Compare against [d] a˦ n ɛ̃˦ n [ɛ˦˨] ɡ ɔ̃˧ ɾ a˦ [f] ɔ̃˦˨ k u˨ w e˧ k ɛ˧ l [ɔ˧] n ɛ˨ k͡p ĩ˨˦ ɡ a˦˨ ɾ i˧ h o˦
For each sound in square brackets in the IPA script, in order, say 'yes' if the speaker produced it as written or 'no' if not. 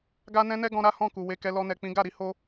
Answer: no, no, no, yes

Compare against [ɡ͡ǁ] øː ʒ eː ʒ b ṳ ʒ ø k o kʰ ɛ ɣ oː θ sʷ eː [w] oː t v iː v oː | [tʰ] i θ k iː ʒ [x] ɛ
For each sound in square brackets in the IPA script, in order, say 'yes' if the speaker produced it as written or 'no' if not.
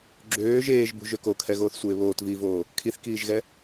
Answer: yes, no, no, no

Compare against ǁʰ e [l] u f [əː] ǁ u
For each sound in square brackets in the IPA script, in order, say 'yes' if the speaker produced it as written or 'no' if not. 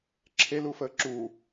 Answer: yes, yes

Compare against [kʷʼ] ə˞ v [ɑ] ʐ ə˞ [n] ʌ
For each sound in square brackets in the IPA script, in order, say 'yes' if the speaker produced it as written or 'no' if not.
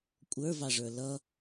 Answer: yes, yes, no

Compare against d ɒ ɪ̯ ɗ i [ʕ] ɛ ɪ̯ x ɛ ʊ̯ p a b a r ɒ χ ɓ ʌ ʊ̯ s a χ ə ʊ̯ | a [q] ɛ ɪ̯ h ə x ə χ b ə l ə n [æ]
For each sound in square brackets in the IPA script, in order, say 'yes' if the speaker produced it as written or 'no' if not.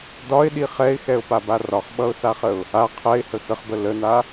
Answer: no, no, no

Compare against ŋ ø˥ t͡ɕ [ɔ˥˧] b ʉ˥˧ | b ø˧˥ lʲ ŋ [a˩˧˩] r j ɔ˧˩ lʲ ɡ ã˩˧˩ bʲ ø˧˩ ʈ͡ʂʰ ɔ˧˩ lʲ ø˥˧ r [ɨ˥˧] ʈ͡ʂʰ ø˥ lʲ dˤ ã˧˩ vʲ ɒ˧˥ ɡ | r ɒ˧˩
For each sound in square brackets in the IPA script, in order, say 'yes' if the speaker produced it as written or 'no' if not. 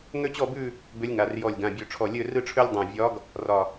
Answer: yes, yes, yes

